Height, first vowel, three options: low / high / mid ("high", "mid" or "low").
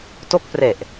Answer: mid